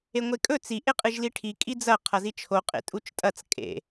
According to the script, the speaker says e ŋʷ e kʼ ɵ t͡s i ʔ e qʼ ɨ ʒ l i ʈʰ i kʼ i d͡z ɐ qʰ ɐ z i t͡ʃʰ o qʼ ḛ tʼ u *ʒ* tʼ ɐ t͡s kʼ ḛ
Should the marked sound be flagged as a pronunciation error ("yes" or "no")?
yes